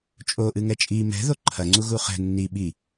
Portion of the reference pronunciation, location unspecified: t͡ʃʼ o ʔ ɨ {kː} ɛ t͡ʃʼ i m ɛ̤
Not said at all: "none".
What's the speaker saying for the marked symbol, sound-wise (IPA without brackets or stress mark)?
ŋ